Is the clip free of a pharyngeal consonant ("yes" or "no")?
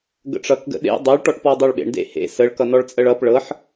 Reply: no